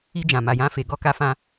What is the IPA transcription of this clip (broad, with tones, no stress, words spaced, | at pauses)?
i˧ d͡ʒã˨ma˨jã˧fe˨ ɡɔ˧ ka˧fã˧